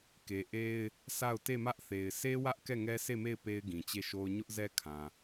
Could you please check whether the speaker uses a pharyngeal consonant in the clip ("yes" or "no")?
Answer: no